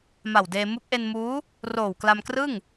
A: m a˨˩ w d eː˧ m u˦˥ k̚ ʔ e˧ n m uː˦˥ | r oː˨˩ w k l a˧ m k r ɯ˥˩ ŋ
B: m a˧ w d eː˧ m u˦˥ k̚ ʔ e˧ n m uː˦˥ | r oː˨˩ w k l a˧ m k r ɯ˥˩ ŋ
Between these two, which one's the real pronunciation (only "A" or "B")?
A